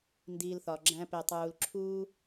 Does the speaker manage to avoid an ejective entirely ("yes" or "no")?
yes